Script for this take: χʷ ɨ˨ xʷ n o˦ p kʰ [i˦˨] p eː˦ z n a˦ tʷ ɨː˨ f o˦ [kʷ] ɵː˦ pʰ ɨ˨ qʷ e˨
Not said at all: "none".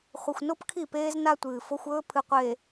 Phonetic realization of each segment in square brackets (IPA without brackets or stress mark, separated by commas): i˦˨, xʷ